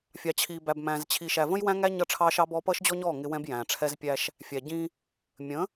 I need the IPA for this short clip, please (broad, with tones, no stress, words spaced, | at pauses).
fʲɑ˨t͡ɕʰiː˨bæ˨bmæ̃ː˨z t͡ɕʰi˨ʃæ˨və̃˦j wæ̃˦ŋæ˦ ɲʌ˦˨ʈ͡ʂʰɑː˦ʃɑ˦bɔː˦ pʌː˦ʃd͡ʑɔ˦ɲɔː˦˨ ŋɪ˦wɛ̃˦b jæ̃ː˨ʈ͡ʂʰɛ˦zpʲæ˦ʃ | fʲæ˨ ɟĩ˦ | mʲə̃˨˦